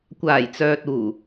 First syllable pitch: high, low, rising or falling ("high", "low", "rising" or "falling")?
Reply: low